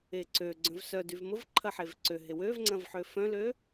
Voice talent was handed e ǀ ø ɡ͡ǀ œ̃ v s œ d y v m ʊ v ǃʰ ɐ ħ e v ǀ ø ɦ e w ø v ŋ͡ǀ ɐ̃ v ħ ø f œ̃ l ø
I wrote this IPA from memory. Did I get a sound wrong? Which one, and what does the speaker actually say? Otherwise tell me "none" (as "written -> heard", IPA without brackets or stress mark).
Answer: none